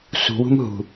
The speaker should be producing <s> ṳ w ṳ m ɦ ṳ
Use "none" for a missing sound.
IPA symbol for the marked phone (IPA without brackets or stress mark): s